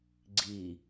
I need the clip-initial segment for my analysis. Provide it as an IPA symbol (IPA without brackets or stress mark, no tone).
ɡ͡ǀ